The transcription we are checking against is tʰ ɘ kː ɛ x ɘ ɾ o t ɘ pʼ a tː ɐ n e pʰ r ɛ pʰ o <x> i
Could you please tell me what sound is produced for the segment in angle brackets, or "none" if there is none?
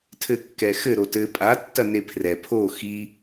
x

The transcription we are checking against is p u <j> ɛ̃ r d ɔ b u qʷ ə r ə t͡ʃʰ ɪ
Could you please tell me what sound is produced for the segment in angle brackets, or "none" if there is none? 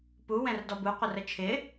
w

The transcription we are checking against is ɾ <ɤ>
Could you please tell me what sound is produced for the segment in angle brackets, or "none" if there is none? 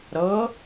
ɤ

